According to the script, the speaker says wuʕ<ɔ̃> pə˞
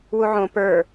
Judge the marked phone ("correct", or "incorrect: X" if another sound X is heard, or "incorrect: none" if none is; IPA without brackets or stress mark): incorrect: õ